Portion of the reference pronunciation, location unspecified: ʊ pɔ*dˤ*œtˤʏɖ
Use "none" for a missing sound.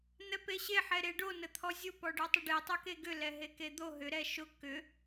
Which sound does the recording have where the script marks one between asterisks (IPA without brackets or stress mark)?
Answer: ɖ